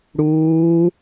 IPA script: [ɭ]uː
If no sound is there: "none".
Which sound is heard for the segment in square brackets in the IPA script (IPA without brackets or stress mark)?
ɽ